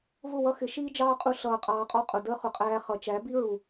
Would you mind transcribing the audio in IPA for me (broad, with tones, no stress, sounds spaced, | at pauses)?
v ʊ˦˨ w ʌ˦ x ɪ˨˦ ʃ iː˦ d͡ʒ ɑː˦ qʼ u˧ ɬ ʌː˧ qʼ ɑː˧ qʼ ɔ˦ qʼ ʊ˨ d əː˦ χ ʊ˨ qʼ æː˧ χ ʌ˨ t͡ʃ æ˨˦ b i˦ ɹ u˨